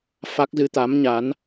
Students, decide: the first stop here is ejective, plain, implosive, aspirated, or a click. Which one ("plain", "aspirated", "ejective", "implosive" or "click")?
plain